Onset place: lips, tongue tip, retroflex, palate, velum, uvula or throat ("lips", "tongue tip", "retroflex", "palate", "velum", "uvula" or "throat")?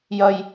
palate